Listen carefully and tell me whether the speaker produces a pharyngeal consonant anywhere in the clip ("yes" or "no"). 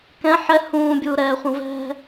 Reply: yes